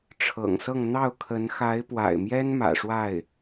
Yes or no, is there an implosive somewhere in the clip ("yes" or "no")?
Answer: no